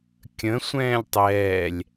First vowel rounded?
no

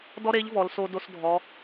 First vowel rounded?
yes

